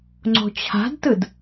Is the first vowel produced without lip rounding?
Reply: no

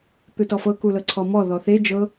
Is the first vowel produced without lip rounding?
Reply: yes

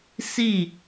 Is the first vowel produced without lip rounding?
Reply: yes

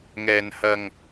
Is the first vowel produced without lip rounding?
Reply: yes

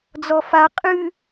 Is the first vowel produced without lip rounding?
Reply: no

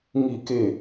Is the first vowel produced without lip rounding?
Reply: yes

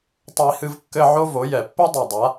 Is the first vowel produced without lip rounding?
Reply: yes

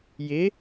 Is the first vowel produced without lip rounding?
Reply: yes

